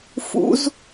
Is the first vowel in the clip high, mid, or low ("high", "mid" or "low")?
high